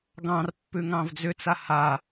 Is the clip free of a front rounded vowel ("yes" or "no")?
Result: no